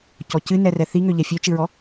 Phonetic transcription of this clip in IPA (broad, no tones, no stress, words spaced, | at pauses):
cɔcɨnɛ rɛθiŋø ʎɛfʲøt͡ʃɨɹɔ